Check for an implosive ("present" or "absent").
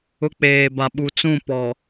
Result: present